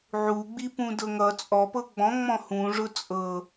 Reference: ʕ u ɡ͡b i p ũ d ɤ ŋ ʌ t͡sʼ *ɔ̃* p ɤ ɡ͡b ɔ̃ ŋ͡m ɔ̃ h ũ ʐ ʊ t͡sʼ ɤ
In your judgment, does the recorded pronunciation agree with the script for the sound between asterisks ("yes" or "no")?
no